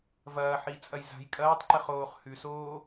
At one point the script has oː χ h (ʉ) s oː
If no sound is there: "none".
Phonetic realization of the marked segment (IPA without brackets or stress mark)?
ʉ